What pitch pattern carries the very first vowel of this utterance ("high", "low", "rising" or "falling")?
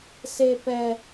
high